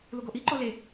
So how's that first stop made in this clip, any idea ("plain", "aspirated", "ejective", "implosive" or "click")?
plain